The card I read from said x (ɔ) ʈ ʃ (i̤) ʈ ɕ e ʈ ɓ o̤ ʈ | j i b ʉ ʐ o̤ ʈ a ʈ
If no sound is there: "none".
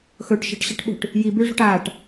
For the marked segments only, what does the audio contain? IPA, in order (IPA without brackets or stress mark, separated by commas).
ɵ, e̤